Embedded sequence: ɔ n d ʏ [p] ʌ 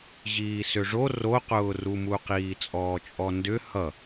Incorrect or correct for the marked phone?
incorrect: h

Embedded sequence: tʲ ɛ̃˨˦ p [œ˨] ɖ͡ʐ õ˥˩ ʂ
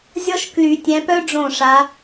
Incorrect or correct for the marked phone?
incorrect: œ˥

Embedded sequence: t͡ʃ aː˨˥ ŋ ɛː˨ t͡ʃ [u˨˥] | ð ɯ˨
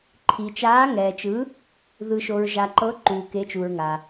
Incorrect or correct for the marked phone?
incorrect: ɯ˨˥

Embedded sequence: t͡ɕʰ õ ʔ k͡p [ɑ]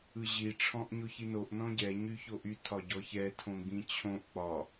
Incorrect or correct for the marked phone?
incorrect: ɒ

